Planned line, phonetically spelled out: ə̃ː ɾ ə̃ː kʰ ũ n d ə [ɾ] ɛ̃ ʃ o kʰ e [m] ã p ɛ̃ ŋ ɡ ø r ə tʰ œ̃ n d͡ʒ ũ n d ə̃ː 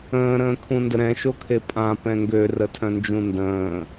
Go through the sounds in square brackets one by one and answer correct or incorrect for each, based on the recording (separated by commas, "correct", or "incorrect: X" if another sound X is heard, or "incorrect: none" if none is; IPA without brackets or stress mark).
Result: correct, incorrect: pʼ